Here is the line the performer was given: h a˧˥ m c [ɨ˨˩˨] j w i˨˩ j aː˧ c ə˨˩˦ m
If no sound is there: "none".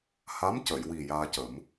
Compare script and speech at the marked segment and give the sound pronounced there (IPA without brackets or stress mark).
ə˨˩˨